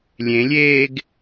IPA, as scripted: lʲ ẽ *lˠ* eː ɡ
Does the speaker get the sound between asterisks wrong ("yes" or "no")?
yes